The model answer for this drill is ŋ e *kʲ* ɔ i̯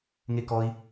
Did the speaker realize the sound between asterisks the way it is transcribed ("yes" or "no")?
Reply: no